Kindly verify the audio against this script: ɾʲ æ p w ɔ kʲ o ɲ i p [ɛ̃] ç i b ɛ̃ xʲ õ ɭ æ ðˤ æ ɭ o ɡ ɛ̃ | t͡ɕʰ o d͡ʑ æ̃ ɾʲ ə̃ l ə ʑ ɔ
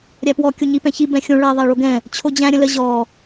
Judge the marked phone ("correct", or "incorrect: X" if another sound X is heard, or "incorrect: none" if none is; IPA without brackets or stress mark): correct